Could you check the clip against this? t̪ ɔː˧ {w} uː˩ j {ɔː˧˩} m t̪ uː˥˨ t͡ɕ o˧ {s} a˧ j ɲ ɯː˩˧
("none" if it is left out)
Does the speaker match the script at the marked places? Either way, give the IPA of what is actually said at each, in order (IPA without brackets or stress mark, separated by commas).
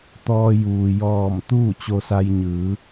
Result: j, ɔː˧˩, s